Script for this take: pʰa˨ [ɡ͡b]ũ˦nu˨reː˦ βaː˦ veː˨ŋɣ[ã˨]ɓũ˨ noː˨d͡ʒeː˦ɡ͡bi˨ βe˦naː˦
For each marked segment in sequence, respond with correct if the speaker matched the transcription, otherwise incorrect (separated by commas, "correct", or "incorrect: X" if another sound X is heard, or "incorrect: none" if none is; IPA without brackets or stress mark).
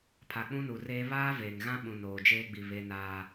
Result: incorrect: k͡p, incorrect: ã˦